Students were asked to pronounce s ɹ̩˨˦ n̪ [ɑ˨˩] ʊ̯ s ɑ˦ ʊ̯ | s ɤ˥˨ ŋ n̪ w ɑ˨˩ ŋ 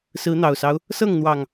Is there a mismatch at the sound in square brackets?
no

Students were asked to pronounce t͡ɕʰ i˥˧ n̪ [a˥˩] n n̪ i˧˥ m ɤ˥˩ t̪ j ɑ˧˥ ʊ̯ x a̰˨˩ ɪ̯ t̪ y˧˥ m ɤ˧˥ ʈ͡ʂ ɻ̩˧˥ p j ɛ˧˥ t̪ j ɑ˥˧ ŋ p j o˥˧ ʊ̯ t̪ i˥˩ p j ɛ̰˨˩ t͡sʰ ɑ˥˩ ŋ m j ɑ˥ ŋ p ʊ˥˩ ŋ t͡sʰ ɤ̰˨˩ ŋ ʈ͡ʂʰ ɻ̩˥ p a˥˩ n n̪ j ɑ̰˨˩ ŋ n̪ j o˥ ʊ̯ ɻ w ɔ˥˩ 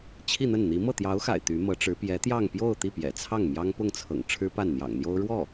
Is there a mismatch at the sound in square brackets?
yes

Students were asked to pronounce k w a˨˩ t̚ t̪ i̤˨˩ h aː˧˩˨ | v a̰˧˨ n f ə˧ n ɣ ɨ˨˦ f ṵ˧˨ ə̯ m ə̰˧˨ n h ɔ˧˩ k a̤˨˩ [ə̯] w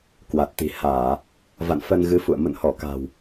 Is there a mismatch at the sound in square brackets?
yes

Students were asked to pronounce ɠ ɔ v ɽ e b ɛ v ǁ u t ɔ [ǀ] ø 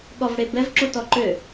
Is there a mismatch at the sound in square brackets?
yes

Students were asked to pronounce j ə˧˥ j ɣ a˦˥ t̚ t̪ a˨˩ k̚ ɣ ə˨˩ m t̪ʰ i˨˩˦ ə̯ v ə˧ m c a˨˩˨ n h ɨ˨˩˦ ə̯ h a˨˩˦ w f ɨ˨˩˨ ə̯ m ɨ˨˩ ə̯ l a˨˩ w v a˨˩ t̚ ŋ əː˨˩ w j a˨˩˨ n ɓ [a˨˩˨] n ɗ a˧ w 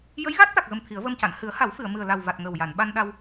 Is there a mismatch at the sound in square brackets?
yes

